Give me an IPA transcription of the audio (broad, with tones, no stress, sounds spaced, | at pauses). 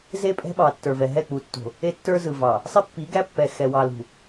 z e˦ pʼ ɛ̤˦ ɓ ɑ˨ tː ə˞˨ v ɛ˨ ɦ ɛ˦˨ k͡p u˨ tː o̤˨ | e˦ tː ə˞˦ z ɯ˨ v ɑ˨ | sˤ i˦ pː i˨˦ ɡ æ˦ pː ɛ˨ x ɛ˨ w ɑ˨ l ṳ˨